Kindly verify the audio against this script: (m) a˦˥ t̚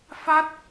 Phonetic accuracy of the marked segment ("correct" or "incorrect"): incorrect